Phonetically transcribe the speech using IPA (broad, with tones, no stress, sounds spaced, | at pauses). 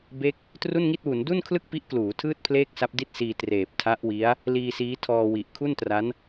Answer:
b e˥˩ k̚ | t r u˥˩ n ŋ i˥˩ t̚ w u˩˦ n d u˥˩ n kʰ l ɯ˥˩ k̚ p i˦˥ ʔ k l uː˩˦ tʰ ɯː˥˩ t̚ pʰ l eː˥˩ k̚ s a˦˥ p̚ d i˥˩ t̚ s iː˧ t r eː˨˩ p̚ tʰ a˦˥ ʔ w i˦˥ a̯ | l iː˧ s iː˦˥ tʰ ɔː˧ w i˨˩ ʔ kʰ u˥˩ n t r a˦˥ n